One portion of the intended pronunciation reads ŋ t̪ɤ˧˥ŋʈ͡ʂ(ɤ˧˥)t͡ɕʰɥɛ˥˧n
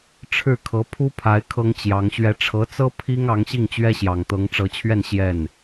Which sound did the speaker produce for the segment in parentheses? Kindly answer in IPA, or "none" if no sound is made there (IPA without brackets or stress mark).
ɤ˧˥